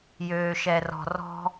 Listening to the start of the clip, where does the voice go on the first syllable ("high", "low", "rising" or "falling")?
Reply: high